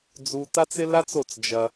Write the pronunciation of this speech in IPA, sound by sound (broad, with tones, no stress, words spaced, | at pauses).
d͡zu˧ta˦t͡sɪ˦ la˦t͡so˦˨t͡s d͡ʒɐ˧